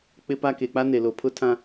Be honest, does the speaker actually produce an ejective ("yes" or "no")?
no